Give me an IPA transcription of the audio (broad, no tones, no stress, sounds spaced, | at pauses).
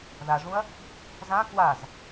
ð a ʐ ũ ɐ̯ | z ã k w a z